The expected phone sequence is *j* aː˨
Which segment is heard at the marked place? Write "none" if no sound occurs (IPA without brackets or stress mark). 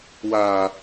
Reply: w